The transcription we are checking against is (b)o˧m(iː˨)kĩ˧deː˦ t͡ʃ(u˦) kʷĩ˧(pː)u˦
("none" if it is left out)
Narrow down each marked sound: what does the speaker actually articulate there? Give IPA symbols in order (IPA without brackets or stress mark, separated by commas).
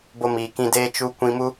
b, iː˨, u˦, m